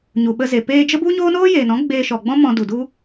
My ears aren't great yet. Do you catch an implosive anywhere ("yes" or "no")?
yes